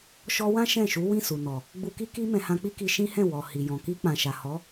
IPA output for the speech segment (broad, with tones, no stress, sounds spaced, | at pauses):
ʃ ɔ˦ w ã˦ ʃ ɛ̃˦˨ ʃ u˨˦ w ĩ˦˨ s u˨ n ɔ˨ | ɡ͡b u˧ k i˦ k i˦ m ɛ̃˧ h ã˧ k͡p i˦ k i˧ ʃ ĩ˦ h ɛ̃˦˨ w ɔ˨ h i˨ j ɔ̃˨ k i˧ k͡p ã˨ ʃ a˨ h ɔ˨˦